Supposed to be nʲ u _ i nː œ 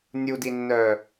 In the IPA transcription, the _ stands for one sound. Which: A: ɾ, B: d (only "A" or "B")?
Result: B